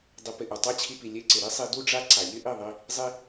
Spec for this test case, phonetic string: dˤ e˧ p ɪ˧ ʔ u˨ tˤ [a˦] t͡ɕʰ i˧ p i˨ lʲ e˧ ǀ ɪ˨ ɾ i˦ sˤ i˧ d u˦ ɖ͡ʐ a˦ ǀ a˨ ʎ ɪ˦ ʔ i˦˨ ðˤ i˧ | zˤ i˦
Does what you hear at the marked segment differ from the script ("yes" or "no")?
no